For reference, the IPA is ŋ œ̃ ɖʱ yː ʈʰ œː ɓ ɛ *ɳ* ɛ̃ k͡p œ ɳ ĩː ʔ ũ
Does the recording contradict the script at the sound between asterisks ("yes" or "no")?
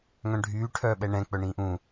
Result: no